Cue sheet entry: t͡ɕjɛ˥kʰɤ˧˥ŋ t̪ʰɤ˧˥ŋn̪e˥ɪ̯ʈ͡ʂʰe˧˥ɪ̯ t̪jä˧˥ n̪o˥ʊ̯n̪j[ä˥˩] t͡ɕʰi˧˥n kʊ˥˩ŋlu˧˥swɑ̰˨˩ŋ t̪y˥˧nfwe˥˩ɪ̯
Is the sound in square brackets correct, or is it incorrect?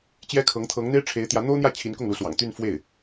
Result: correct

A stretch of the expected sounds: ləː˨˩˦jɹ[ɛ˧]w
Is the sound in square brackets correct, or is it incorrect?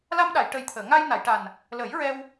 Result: correct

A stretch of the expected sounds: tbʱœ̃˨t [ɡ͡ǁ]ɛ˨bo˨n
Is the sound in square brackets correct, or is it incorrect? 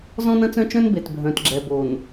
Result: correct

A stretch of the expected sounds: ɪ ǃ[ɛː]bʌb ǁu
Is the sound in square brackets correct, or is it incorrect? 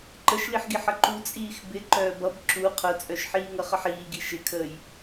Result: incorrect: œː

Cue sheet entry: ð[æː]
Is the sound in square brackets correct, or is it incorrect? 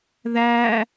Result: correct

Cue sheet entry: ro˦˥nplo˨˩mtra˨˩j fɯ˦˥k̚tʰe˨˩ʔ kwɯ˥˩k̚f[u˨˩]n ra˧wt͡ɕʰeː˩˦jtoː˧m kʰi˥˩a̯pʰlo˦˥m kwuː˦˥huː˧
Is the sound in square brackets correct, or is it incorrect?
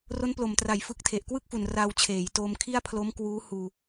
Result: correct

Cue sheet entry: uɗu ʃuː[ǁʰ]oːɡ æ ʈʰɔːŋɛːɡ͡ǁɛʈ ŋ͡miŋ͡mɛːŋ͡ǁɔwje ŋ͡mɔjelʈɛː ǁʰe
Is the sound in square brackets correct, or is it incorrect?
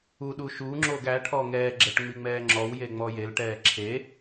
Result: incorrect: ŋ͡ǁ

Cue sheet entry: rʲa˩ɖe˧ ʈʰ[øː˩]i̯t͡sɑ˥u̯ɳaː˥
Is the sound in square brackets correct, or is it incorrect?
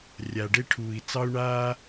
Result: incorrect: uː˩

